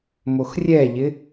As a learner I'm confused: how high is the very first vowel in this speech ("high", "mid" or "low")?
mid